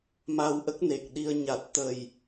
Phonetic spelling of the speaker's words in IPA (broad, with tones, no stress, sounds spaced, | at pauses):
m a˧ w ʔ ə˦˥ k̚ n e˨˩ k̚ ɗ i˧ ə̯ ɲ a˨˩ t̚ t̪ ə˨˩ j